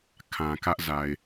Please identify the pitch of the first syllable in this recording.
low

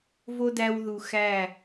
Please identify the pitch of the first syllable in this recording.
high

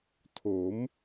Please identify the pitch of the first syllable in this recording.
rising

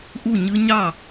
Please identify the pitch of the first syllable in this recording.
falling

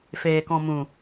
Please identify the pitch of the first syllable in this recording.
low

